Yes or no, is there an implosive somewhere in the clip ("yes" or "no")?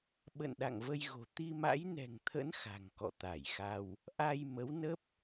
yes